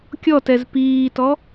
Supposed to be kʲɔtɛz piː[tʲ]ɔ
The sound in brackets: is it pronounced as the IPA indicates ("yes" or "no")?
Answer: no